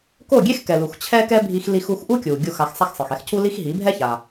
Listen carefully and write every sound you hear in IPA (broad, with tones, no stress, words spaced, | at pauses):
ko˥˩ɡʲe˥x kɛ˩lu˩x t͡ɕʰɛ˥kɛ˥ bʱi˧xli˧xu˧x ʔu˥kʲu˩ ɡʲu˥˩xa˧x sˤa˥˩xsˤɯ˩xɛ˥x cʰu˥li˥x ɦi˩˥bʱɛ˥ça˩